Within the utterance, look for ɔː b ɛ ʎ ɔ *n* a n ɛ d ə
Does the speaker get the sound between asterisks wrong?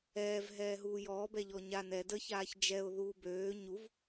yes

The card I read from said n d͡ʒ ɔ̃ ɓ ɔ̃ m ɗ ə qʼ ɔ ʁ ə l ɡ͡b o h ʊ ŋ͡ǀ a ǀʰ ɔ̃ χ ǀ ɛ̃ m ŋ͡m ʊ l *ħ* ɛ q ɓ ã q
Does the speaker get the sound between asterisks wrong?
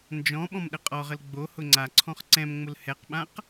yes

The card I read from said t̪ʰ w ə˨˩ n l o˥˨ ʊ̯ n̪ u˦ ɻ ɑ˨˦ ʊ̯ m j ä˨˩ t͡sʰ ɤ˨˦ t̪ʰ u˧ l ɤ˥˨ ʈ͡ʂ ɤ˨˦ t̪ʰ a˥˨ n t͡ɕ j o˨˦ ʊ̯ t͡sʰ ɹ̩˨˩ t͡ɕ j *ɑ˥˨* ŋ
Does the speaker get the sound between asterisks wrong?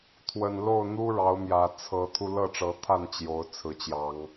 yes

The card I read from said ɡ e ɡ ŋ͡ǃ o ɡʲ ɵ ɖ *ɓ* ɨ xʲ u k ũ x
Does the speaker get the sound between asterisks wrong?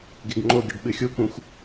no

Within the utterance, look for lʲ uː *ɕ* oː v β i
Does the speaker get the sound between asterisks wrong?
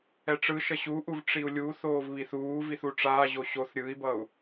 yes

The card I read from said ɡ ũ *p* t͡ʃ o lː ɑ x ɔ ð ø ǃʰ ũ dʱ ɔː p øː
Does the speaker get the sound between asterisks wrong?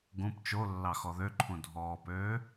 no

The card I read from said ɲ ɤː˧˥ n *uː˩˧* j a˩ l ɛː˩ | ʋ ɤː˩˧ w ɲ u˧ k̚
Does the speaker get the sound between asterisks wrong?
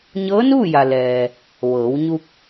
yes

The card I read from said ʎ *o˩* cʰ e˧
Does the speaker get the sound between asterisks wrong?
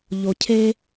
no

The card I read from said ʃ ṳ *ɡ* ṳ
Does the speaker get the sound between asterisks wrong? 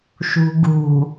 no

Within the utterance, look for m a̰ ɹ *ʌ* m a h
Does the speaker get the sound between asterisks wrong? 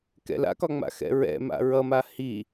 no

